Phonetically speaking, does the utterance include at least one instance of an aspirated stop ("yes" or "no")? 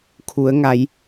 yes